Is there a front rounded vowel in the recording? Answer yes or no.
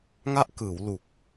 no